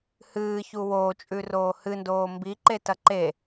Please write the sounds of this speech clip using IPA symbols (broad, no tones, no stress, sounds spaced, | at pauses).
h ɨː ç u w oː t͡ʃʼ ʉ r oː h ɨ n d oː m b i ǃ e t ɐ ǃ e